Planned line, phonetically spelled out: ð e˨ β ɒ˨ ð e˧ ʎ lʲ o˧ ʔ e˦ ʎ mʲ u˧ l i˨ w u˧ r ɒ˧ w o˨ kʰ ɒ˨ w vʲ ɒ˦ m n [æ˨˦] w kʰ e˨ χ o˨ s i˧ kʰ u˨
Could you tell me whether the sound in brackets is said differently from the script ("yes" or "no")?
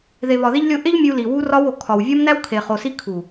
yes